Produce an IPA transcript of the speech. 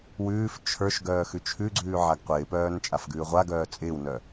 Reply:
w ʉː f t͡ʃʰ ə˞ ʃ ɡ œː x ʉ t͡ʃʰ ʉ ɡ͡ǀ ʉː ʕ a ɡ qʷ ɪː p œː n t͡ʃʼ a f ɡ ʉː ʁʷ a ɡ œː t͡sʼ ɪː w n œ

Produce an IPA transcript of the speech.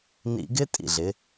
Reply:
n ḭ˧ ɡ ɪ˦ tʼ ḭ˦˨ ɮ ɪ˨˦

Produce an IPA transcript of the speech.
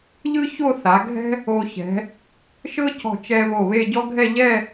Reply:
ʎ ɯ˥ ç o˥˧ θ a˩˧ ɡʱ ɛ̤˥ | o˧ ç ɛ̤˩˧ | ʃ ɤ˥ c ɔ̤˧˩ t͡ʃ ɛ˧ β o˧˩ β e˥˧ ɟ ɔ˥ ɡʱ ɛ˥˧ ʎ ɛ˥˧

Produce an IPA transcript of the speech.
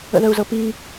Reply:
ə̰ ð ə u̯ z ɤ p i

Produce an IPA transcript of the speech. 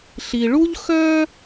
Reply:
ɬ i˩ ɭ u˥ ʎ x œ˥

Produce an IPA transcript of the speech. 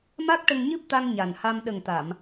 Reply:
m a˦˥ k̚ ʈ ə˧ ŋ ɲ ɨ˦˥ p̚ t̪ a˧ ŋ ɲ a˨˩ n h a˧ m ɗ ə˨˩ ŋ t̪ a˨˩˨ m

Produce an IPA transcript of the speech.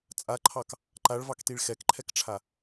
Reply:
t͡sʼ a ǃʰ ɑ k | ǃ a ɭ v ɑ k t i ɭ x ɛ k ǃʰ ɛ k ʈ͡ʂʰ a

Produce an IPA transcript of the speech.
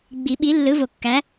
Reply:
ɡ͡b i˨˩˦ ɓ i˨˥ lː ɯ˨˥ v o˨˩ kː æ˨˥

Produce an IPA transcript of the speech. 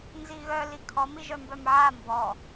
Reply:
n z i ɣ œ l i kʰ ɔ m i ʒ œ m b œ m ʕ a m b ɔ

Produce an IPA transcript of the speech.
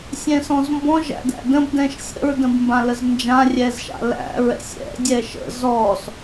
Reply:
sʲ ɛ̃ s ɔ̃ z m b ɔ̃ ʒ æ̰ d æ̰ d ə̃ b d ɛ̃ ʃ sʲ ə̰ ɹ d ə̃ b m b ã l ə z n d͡ʒ ã rʲ ɛ z ʃ a̰ l æ̰ ɹ ɛ̰ sʲ ɛ̰ dʲ ɛ ʃ ə̰ z ɔ s

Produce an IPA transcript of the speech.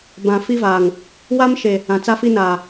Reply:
b ã˨ f i˦ v aː˨ ŋ | w a˦ m ʃ e˨ | ã˨ t͡s a˦ f i˦ n aː˨

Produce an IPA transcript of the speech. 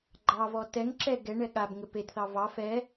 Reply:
ɡ͡ǃ ɑ v ɔ t ɛ ŋ ǁ ɛ ɡ ɛ ɳ ɛ ɠ a b ŋ ɘ p e d θ ɑ v ɑ f ɛ

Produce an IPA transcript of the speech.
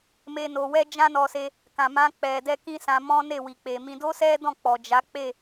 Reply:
m e˦ n o˧ w ɛ˦ d͡ʒ ã˦ n ɔ˧ s e˧ | k ã˨ m ã˧ k͡p ɛ˨ d ɛ˧ k ĩ˦ s ã˧ m ɔ̃˦ n e˦˨ w i˨ k͡p e˨ m ĩ˧ d o˦ s ɛ˦ d ɔ̃˦˨ k͡p ɔ˨ d͡ʒ a˨˦ k͡p e˦˨

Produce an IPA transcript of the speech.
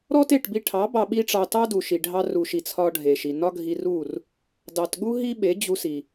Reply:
ɾ ɔ˦ t e˦˨ ʈ b i˧ ʈʰ ɑ˨˦ b ɑ˧ ɓ i˦ ʈ͡ʂ ɑ˧ t ɑ˦ d u˨ ʃ i˨ ɖʱ ɑ˧ r u˨ ʃ i˨ t͡sʰ ɒ˦ ɖʱ e˨ ʃ i˨ n ɒ˦ ɡʱ i˧ r u˦˨ r | d ɑ˨ t ɠ u˦ ɦ i˦ ɓ e˨˦ d͡ʑ u˧ s i˨

